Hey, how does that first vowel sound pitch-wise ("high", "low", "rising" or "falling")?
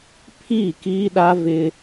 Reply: falling